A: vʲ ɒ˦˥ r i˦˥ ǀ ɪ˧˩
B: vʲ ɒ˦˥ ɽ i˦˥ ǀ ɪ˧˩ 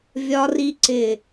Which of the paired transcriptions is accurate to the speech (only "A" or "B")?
A